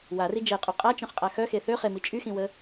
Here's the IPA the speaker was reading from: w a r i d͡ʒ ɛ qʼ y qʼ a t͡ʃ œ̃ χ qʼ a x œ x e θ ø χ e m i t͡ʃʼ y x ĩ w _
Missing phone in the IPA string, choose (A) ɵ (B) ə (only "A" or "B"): B